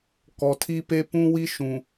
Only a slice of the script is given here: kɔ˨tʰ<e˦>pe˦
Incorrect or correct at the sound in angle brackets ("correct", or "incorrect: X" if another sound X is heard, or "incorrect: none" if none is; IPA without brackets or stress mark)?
incorrect: i˦